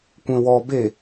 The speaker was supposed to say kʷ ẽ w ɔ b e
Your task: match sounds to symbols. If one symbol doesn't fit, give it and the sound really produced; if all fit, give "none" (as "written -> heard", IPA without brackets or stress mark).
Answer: none